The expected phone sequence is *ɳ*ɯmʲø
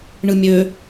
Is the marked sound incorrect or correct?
correct